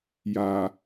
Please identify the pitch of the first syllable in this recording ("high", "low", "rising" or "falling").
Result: low